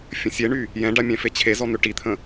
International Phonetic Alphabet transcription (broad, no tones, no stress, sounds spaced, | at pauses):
fʲ ə̃ sʲ e ɳ y | j ɛ̃ ɖ a mʲ ɛ̃ f e t͡ɕʰ e z ɔ n̪ ø ʈ i t̪ʰ ə̃